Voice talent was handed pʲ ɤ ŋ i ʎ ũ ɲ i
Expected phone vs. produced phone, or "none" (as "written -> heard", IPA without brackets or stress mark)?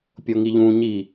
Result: ɤ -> o